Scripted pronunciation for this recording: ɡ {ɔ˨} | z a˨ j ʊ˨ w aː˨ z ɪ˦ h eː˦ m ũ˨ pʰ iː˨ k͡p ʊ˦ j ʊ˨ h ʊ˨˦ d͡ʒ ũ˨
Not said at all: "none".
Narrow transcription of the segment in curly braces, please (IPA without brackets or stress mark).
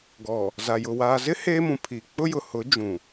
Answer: ɔ˨